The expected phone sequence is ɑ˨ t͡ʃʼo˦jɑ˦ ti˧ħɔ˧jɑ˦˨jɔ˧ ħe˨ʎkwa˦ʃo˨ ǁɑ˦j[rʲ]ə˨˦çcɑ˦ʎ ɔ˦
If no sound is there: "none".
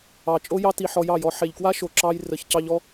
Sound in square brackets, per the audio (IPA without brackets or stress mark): r